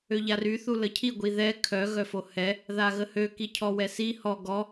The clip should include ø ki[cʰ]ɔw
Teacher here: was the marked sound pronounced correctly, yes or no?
yes